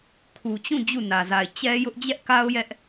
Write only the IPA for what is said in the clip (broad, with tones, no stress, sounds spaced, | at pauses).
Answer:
kʰ u˨ t͡ɕ ũ˦˨ d͡ʑ u˦˨ n ä˨ z a˨ ɪ̯ t͡ɕ ɛ˦ j ʊ˦ ʔ d͡ʑ ɛ˦ ʔ k a˦ ʊ̯ j ɛ˦ ʔ